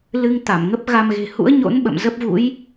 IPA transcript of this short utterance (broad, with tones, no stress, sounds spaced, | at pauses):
l ɨ˧ ŋ t̪ a˧˩ m ŋ ə˦˥ p̚ ɣ a˧ m ɣ e̤˨˩ h ṵ˧˥ ə̯ ɲ o̰˧˥ n ɓ ə̰˧˨ m z ə˦˥ p̚ v ṵ˧˥ j